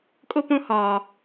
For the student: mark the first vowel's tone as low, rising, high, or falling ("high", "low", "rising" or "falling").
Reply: high